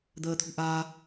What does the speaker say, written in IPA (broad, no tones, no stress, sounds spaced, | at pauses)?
d̪ əː t̪ʰ ṳ ʔ a